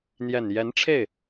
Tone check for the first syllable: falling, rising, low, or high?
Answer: low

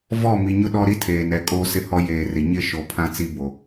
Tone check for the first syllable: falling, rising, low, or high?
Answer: falling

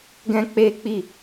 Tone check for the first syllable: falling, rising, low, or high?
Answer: high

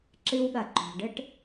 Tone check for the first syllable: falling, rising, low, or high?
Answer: high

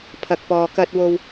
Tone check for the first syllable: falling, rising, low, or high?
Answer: low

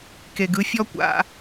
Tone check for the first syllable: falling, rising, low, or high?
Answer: low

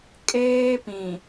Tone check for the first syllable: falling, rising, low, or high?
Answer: high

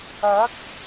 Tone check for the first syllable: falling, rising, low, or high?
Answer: rising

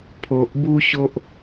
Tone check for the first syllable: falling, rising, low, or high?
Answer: low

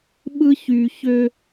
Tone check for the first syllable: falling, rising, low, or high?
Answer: high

